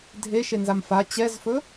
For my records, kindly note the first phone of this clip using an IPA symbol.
dʱ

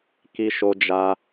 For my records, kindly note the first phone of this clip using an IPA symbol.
k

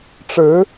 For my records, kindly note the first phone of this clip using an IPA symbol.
ʈ͡ʂ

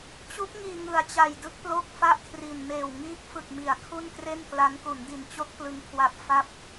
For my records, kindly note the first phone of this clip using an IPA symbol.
t͡ɕ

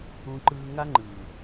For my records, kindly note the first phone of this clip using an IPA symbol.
ũ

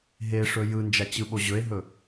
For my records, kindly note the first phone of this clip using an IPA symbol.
ɦ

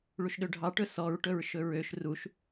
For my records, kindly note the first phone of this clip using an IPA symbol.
ɭ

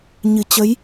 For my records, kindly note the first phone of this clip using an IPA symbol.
ɲ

